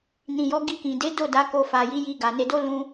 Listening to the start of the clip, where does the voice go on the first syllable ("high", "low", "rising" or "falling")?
low